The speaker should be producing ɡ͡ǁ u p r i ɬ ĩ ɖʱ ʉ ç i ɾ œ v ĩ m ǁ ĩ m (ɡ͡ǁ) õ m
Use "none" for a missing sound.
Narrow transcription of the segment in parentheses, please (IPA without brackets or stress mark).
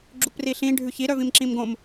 ɡ